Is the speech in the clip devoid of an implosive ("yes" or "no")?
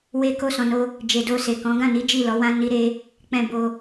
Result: yes